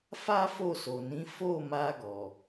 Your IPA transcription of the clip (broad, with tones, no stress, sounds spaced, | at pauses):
f a˦ f o˦˨ s o˨ n ĩ˨˦ f o˦˨ m a˧ ɡ ɔ˨